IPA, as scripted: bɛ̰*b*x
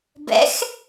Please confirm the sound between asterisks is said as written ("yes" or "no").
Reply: no